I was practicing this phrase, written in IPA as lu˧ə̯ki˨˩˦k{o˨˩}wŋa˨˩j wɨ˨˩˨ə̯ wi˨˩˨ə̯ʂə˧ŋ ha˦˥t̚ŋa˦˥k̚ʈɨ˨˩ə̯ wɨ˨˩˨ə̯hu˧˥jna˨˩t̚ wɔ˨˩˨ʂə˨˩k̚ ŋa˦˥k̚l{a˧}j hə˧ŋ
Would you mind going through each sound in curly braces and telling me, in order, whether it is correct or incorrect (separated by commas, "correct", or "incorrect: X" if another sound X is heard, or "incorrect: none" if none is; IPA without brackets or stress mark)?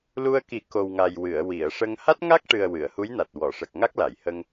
correct, incorrect: a˨˩˨